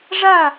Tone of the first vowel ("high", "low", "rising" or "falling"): falling